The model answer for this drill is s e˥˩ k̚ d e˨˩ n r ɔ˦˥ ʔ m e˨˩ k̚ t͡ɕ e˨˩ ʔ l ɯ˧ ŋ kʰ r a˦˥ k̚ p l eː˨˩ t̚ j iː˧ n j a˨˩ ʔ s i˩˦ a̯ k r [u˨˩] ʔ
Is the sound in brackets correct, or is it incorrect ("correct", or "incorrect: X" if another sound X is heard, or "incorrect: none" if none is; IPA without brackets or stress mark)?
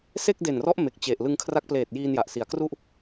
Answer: incorrect: u˥˩